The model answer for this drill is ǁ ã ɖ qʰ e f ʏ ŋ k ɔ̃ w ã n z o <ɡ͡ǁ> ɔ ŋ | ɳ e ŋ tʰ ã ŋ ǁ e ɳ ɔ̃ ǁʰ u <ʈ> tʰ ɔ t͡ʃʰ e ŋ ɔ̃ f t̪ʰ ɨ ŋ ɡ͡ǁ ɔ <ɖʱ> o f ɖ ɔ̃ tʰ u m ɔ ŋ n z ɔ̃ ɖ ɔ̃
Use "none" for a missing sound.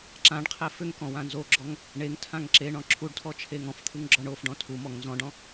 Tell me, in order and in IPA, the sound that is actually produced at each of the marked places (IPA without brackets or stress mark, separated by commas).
ɡ͡ǁ, ɖ, ɳ